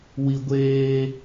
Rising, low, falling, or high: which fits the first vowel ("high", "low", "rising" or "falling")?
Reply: high